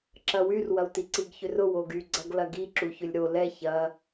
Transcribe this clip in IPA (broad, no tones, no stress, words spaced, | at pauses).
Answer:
ǁɐwyr wɐwtiǀiɡ çʏrʊ woɡy ɡ͡ǀɐɡlɐɡi ǁuçʏlʲɾo lɛ çɐ